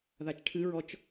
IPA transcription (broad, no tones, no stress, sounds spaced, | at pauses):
ð a t͡ʃ ʈʰ ɨ ɹ ɔ t͡ʃ